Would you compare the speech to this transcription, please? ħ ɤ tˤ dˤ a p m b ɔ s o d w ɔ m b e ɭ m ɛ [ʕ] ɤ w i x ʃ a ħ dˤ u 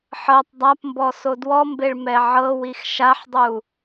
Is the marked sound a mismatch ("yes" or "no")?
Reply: no